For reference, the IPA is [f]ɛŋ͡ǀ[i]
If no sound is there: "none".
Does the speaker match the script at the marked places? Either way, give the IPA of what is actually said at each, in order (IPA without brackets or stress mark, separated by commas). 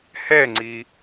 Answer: h, i